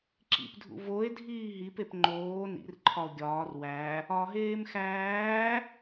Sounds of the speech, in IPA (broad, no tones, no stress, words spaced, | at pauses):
ǁḭpdʱṵ voe̯dʱiː ɦipep ŋ͡ǃoː nḭrǃʰɒo̯ ɡʲɒːr wæ | ɒɦeːm xæː